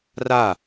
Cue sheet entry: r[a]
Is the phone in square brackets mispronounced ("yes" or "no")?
no